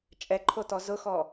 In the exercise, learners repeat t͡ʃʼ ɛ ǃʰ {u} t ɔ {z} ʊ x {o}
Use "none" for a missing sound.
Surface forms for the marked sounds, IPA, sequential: o, z, ɔ

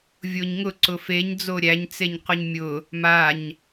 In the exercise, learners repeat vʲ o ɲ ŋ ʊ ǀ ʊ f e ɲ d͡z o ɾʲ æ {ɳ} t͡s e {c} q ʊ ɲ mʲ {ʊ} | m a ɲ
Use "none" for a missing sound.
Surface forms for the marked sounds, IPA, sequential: ɲ, ɲ, ʊ

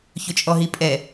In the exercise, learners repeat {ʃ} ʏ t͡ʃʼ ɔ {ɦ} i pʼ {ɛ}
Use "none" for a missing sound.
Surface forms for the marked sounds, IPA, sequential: ç, ɦ, ɛ

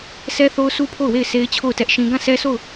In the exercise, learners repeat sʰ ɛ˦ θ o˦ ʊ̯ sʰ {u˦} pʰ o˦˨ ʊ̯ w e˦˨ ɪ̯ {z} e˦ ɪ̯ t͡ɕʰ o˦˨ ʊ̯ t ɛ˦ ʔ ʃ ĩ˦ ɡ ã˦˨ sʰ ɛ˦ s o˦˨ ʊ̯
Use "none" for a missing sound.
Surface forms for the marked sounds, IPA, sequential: u˦, s

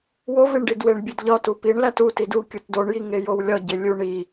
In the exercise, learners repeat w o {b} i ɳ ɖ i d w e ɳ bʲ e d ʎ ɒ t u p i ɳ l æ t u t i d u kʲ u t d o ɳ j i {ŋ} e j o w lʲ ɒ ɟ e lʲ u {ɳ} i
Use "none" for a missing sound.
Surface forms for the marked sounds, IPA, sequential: v, ŋ, ɳ

